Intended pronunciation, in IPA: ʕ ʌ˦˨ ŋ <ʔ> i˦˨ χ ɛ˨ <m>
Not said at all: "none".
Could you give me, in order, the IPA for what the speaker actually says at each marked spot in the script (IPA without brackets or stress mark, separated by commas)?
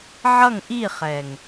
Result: ʔ, ŋ